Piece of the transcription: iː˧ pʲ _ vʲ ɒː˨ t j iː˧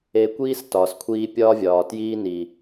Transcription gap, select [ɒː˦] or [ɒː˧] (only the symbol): ɒː˦